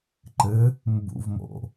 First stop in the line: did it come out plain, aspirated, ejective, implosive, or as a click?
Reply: click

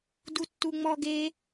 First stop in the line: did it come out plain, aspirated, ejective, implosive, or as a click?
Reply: plain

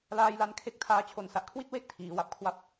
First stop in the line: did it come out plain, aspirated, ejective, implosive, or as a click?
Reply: aspirated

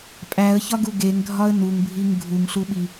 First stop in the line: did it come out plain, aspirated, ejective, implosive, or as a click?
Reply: ejective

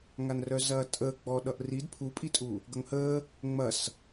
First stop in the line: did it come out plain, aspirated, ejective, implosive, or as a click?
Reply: ejective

